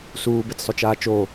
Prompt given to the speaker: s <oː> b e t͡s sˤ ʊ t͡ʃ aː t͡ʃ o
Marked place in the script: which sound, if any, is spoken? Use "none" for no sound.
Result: uː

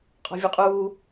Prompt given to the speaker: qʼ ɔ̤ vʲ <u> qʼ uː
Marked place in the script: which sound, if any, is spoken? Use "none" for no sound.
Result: u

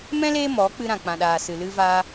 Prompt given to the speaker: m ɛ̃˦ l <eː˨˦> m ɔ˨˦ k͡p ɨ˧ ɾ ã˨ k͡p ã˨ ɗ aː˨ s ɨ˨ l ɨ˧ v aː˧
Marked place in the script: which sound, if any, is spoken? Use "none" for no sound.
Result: eː˦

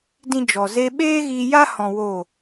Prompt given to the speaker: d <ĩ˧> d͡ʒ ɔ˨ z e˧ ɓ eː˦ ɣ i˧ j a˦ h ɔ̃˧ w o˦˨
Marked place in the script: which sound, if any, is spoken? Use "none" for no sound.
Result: ĩ˦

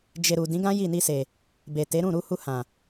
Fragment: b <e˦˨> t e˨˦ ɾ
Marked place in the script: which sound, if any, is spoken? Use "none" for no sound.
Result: e˨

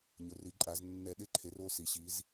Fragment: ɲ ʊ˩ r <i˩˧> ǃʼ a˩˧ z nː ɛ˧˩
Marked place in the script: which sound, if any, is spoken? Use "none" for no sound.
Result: i˩˧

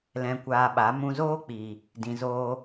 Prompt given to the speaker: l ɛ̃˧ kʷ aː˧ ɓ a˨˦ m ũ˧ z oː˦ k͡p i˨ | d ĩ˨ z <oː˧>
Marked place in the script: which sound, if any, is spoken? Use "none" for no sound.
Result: oː˧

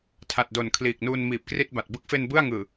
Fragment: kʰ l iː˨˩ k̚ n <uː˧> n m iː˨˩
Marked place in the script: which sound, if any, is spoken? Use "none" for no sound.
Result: uː˧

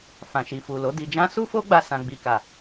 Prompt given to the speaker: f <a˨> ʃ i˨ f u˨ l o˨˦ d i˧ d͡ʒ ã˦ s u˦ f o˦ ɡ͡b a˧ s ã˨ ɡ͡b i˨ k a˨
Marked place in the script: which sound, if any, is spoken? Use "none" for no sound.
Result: ã˨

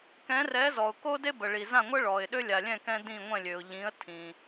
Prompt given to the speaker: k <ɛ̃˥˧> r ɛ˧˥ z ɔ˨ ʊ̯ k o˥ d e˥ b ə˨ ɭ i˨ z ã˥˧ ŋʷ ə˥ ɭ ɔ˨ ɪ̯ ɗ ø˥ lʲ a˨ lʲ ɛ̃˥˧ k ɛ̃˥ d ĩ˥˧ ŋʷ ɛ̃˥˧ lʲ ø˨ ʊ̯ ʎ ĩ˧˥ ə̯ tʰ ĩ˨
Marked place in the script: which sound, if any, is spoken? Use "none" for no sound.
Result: ɛ̃˧˥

